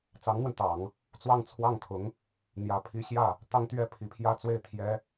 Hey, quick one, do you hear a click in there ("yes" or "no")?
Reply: no